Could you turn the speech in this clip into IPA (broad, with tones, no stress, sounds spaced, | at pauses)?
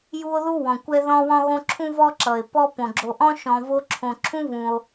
j u˦ o̯ ð u˥ w ɔ̃˩ kʷ ɛ˦ ð ɔ̃˦ w ɔ̃˦ ɣ õ˦ ǁʰ ũ˥ v ɔ˥ ǁ ʌ˩ e̯ p ɔ˦ p õ˩ ɡ͡ǁ o˨ ʔ ɔ̃˥ ʃ ɔ̃˨ v o˦ ǁʰ õ˨ ǁʰ ũ˥ v ũ˩ o̯